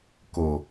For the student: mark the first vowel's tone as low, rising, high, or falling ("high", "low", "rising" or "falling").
low